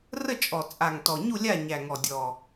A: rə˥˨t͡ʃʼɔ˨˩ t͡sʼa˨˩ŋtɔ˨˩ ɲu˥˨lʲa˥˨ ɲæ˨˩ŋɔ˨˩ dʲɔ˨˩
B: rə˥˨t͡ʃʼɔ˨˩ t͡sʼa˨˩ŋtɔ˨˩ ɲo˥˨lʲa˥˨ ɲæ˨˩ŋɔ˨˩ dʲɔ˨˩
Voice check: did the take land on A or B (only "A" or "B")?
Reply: A